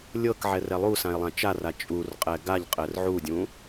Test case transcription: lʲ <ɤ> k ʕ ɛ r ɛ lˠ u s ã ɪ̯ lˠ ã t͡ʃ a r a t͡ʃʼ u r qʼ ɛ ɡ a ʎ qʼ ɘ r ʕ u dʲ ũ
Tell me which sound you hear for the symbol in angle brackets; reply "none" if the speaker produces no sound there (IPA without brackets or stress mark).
ɤ